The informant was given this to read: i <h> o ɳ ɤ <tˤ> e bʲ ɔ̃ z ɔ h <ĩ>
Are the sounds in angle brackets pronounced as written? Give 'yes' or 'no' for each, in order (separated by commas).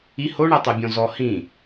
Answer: yes, yes, yes